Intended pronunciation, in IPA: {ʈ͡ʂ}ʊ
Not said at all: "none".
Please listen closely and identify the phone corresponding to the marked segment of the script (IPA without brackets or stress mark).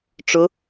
ʈ͡ʂ